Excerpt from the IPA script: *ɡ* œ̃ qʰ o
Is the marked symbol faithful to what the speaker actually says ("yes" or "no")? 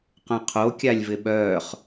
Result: no